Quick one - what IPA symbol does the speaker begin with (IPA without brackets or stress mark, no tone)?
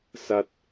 s